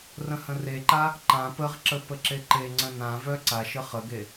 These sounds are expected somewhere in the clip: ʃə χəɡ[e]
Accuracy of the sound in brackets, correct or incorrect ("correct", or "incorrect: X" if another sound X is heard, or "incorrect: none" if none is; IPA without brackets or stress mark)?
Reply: correct